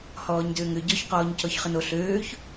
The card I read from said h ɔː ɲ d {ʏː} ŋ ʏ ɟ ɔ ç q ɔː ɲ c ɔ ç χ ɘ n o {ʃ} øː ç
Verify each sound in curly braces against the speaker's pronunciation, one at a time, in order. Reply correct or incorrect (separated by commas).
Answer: correct, incorrect